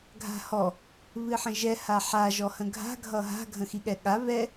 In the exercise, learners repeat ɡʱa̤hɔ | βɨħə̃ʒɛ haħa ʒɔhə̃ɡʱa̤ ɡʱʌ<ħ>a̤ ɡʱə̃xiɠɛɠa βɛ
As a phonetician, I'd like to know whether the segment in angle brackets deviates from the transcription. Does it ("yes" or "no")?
yes